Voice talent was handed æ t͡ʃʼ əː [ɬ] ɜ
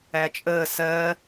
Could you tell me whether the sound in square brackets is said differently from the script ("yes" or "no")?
yes